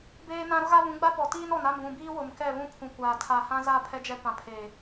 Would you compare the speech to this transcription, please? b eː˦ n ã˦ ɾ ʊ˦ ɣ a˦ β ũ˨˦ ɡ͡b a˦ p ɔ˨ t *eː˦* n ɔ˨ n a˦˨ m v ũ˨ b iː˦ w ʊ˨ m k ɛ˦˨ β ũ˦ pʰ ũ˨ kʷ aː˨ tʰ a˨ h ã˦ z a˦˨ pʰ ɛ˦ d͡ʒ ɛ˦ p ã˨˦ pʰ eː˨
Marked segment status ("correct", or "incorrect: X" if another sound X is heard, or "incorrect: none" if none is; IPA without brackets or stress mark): incorrect: iː˦